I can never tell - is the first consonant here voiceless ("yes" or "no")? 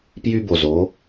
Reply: yes